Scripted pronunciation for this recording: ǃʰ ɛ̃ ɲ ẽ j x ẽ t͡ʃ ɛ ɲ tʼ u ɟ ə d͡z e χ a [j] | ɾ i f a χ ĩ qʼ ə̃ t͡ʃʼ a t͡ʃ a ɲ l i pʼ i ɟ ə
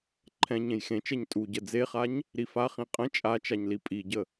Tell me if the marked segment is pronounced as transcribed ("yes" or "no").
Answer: no